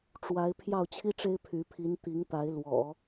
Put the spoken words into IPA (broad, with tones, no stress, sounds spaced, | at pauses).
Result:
ʈ͡ʂ w a˧˥ ɪ̯ pʰ j ɑ˥˩ ʊ̯ t͡ɕʰ i˥ ʈ͡ʂ e˥ ɪ̯ pʰ y˧˥ pʰ i˧˥ n t̪ i˧˥ ŋ t̪ a˧˥ ɪ̯ l w ɔ̰˨˩˦